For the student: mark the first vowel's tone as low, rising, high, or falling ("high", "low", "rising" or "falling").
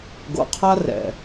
low